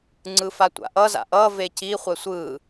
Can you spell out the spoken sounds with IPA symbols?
ŋ͡ǀ ɯ f a tʷ a̰ ʔ ʌ z a̰ ʔ ʌ v e c i χʷ ɛ sʷ ɯ

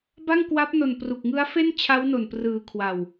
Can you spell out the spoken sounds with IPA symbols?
b a˥˩ ŋ k w a˦˥ p̚ n o˧ n p r u˨˩ k̚ ŋ ɯ˦˥ a̯ f e˥˩ n t͡ɕʰ a˦˥ w n o˨˩ n p r ɯː˨˩ kʰ w a˨˩ w

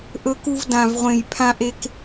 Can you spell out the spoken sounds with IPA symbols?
ʔ ɵ˨ k u˨ v d ã˨ v ʁʷ ẽ˨ j pʰ ã˨ ʔ e˨ k

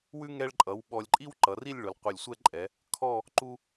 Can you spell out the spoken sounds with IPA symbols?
w ʉ˥ ŋ ɛ˧ ɭ ǃʼ ʌ˩˧ w ɓ ɔ˧ lʲ ǃʼ i˥ w ǃ ʌ˩˧ r i˥˧ lʲ ɭ ʊ˩˧ l qʷ ʌ˧˩ lʲ sʷ ɛ˥˧ ǃʼ ɛ˩˧ | kʰ ɔ˥˧ | ǃ u˥

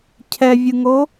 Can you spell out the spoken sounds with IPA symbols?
cʰ ɛ vʲ ɯ ŋ o

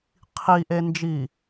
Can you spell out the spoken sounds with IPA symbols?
qʰ i ʔ e n d͡ʒ i

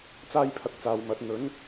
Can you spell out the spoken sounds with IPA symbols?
t͡s aː˥ j pʰ ɐ˧ k̚ t͡s aː˨ w m ɐ˨˥ t̚ n̪ ɵ˨˥ n

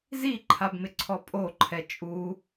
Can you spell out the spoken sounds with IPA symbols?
z i ǃʰ a b m ɪ ǀʰ ɔ pʼ o ǃʰ ɛ t͡ʃʼ u

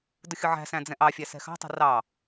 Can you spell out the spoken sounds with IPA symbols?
d ʊ xʲ ʊ ʕ æ̤ s æ̃ d͡z ɛ̃ ʔ ɑ fʲ æ s ɛ̤ x ɑ̤ tˤ ə̤ r ɑ

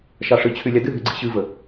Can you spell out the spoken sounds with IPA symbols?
ʃ ɑ ʂ ɨ t͡ɕʰ y lʲ ɑ d ɨ ɦ y ɡ͡ǀ ḭ ɕ ɨ v ə

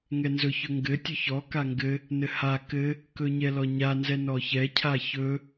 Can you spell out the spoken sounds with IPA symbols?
ŋ ɛ n z ɵ ç ɵ ŋ ɡ ɘ tʲ ɵ ç ɔ k a ŋ ɡ ɘ | n ɘ h a k ɘ | k ɵ ɲ ɛ l ɔ ɲ a n z ɛ n ɔ ç ɛ cʰ a ç ɵ

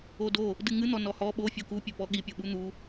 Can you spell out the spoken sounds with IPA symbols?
o d o | d ɨ ŋ ɨ n̪ ɔ n ɔ h ɔ ɓ o fʲ o k u pʲ ɘ p ɔ ɠ i pʲ o ɓ u n̪ u

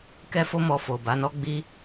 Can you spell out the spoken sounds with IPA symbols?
k ɛ˦ f o˦ m ɔ˧ f o˨ b a˨˦ n ɔ˦ ɡ͡b i˦

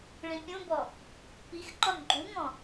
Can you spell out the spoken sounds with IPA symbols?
ɭ ĩ pʲ ũ b ɔ | p i x ǃ ɔ n ɡ͡ǃ u ŋ ɔ̃

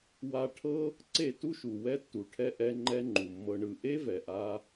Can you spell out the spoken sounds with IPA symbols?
w a˧ ʈʰ ɤ˦ | ǀ e˦˨ t u˦ ʃ u˨ w ɛ˦ tː u˨ ʈʰ ɛ˦ ʔ ɛ˦ ŋ͡ǃ ɛ˦ ŋ͡ǃ u˨ mː ɤ˧ ɳ ɯ˧ ʔ e˦ v ɛ˨ ʔ a˧

